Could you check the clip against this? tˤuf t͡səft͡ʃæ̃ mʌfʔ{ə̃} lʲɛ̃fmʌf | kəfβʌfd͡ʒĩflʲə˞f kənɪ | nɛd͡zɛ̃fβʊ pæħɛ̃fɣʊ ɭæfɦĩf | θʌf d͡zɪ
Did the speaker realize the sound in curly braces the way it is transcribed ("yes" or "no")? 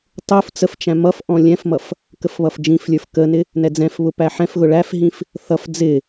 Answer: no